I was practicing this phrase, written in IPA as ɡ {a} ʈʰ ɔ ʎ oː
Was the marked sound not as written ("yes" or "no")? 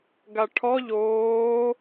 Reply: no